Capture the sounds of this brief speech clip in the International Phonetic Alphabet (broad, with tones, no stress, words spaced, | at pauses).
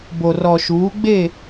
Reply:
bo˨rɔ˨ʃuː˨˦ɡ͡be˦˨